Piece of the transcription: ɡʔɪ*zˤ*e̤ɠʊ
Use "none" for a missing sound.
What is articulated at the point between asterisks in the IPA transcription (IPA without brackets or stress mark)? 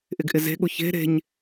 z